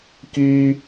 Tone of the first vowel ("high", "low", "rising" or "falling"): high